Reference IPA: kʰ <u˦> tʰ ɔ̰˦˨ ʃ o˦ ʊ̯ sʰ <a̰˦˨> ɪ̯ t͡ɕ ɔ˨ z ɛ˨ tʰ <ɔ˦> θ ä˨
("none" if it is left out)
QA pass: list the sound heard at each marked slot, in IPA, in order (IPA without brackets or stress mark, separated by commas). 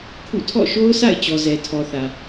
ṵ˦˨, a̰˦˨, ɔ˨